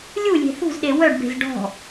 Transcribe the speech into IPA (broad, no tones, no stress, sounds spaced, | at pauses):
lʲ u lʲ e̤ θ ṳ z ɗ e w œ ɖ b e̤ z ɖ ɔ̤